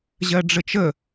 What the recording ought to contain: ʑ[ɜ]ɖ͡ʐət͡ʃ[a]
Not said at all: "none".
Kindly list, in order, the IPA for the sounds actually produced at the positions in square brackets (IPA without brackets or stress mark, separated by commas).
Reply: ɜ, ə